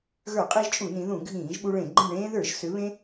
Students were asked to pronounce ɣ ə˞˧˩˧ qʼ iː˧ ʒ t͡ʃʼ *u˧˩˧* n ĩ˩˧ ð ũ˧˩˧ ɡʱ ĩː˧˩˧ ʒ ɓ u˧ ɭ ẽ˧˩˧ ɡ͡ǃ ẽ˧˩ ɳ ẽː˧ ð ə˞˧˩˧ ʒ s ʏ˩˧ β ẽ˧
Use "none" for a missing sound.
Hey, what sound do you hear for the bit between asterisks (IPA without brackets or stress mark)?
u˧˩˧